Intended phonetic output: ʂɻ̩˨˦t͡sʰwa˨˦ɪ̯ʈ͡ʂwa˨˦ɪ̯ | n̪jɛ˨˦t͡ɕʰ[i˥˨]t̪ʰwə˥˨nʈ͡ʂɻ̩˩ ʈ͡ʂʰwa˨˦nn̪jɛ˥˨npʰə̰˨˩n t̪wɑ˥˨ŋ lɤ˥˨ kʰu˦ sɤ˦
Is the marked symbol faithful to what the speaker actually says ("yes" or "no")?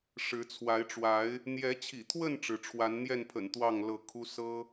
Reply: no